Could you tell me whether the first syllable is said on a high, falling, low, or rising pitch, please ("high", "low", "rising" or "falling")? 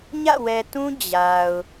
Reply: falling